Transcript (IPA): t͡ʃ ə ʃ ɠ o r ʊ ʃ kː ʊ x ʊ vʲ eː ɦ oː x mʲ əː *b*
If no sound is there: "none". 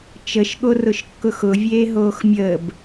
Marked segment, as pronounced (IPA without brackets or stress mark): b